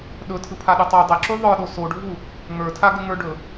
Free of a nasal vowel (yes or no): yes